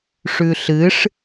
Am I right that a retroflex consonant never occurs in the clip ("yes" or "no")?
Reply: no